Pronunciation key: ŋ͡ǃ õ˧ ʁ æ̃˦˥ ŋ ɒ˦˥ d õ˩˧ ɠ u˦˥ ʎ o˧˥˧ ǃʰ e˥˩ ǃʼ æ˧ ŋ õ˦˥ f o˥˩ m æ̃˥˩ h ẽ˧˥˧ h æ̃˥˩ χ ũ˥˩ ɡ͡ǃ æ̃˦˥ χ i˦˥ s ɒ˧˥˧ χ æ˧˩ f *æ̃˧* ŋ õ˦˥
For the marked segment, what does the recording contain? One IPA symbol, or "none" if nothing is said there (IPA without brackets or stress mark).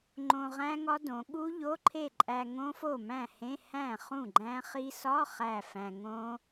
æ̃˧